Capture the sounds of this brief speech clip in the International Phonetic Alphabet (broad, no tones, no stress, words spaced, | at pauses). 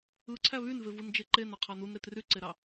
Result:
ɯǀʰæ βynvevɯnd͡ʒe ǃenɑqʰɑ nunɾet ryǀeɾɑ